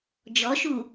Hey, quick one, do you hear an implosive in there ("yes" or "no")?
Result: no